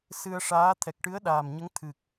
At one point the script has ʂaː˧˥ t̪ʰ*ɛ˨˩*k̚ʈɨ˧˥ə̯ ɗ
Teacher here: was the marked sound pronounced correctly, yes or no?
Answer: yes